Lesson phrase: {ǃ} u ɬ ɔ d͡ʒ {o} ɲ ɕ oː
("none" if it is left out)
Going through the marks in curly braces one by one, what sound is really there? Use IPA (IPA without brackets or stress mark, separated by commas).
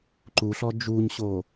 ǃ, u